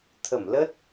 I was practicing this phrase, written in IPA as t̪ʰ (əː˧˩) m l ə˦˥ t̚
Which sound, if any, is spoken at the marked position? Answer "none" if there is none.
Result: ə˧˩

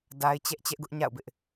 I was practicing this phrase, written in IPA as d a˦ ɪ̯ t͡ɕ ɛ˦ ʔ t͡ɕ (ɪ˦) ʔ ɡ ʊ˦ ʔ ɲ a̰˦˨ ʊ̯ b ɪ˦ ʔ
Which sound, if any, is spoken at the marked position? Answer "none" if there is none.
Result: ɛ˦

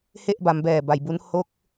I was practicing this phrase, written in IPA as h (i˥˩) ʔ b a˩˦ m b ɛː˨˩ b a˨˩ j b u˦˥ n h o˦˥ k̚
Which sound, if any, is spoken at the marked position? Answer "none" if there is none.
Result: e˥˩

